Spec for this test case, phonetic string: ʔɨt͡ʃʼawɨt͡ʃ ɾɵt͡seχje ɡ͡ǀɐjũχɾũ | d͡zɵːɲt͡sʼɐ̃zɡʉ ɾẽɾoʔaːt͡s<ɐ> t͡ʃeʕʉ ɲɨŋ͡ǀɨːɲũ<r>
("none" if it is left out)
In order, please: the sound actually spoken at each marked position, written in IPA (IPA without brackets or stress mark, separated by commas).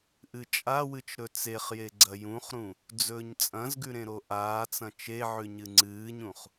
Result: ɐ̃, χ